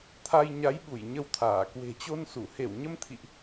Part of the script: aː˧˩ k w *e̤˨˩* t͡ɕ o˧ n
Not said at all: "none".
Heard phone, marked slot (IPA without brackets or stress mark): e̤˨˩